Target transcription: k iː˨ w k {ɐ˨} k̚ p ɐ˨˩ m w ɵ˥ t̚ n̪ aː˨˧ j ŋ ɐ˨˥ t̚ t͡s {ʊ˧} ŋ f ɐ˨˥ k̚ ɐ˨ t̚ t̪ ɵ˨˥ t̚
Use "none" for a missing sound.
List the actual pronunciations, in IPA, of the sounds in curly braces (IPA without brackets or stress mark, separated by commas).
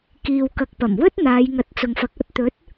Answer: ɐ˨, ʊ˨